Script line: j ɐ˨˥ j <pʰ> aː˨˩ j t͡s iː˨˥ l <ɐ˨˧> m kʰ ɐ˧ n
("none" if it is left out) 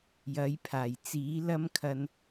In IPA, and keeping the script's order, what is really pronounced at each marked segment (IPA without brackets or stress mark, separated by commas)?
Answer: pʰ, ɐ˥